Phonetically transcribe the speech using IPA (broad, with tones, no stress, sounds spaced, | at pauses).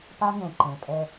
p a˦ ŋ ɛ̃˨ ǃ ɛ̃˨ pʼ ɛ˦